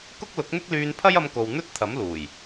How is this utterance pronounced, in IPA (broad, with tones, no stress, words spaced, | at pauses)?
kʊ˥k̚lʊ˨˥k̚n̪ɪ˥k̚lyː˧n pʰɐ˥jɐ˧mko˨w n̪ɵ˥t̚t̪ʰɐ˨˥mluː˨˩j